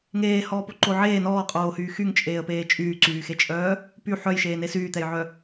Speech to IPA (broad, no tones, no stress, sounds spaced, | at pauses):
ŋ eː h ɔː p o ǃ o ʕ eː n ɔː qʼ oː h yː x y ŋ t͡ʃʼ eː ə̯ p eː t͡ʃʼ yː ǀ yː x e t͡ʃʼ œː | p y ħ œ j ʃ eː n e s yː t̪ ɛ j ʕ œ